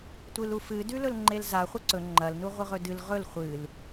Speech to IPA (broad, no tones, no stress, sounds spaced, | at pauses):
tʷ ɨ l u f ɨ d ʉ l ɵ l ŋ͡ǃ e l z a χʷ ɐ ǀ ɵ ŋ͡ǃ ɐ l n u ʁʷ ɨ ʁ ɵ d ɨ l ʁ ɵ l χʷ ɨ l